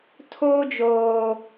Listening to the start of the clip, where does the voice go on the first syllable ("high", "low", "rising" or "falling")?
high